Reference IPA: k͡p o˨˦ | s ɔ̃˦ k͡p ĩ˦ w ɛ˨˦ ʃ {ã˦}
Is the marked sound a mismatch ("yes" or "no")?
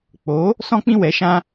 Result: no